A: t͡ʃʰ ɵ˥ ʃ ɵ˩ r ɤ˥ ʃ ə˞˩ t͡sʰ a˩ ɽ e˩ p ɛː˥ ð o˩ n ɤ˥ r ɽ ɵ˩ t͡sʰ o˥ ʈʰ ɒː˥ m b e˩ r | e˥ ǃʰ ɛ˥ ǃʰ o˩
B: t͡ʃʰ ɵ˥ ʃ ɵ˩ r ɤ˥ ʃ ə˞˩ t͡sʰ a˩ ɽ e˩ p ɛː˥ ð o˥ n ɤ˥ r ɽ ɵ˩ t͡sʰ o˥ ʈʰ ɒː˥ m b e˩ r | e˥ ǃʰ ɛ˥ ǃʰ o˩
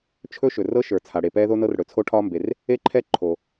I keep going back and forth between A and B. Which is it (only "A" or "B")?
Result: B